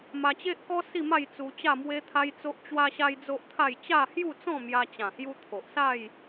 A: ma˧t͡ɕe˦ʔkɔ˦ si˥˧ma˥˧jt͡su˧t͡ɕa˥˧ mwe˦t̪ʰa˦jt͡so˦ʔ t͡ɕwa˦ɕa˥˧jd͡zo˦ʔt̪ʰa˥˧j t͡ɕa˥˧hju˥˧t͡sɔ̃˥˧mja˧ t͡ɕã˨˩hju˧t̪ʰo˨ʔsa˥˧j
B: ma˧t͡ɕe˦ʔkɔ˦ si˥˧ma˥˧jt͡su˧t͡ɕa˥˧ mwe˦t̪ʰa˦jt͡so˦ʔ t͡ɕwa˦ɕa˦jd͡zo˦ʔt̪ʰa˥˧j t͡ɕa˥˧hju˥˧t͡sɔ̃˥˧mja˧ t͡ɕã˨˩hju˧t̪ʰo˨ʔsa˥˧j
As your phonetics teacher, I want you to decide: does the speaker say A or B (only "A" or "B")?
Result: B